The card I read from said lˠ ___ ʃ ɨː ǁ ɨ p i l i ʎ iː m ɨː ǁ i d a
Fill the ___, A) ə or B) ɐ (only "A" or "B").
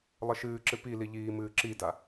A